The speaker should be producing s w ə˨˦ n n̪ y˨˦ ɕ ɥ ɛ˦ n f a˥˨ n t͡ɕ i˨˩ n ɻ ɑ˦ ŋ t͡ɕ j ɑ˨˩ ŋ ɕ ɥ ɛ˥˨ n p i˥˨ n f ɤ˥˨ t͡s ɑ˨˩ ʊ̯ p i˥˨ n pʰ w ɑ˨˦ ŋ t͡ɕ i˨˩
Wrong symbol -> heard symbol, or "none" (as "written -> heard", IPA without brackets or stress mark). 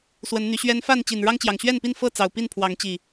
none